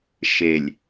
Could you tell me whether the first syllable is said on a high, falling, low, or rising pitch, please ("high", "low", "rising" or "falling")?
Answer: low